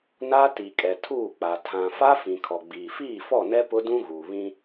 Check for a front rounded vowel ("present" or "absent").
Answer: absent